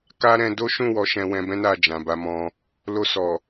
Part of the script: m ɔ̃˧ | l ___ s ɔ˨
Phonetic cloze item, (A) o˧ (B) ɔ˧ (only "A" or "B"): A